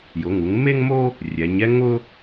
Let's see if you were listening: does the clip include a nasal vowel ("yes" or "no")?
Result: no